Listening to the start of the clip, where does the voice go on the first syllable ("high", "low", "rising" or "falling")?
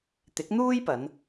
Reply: rising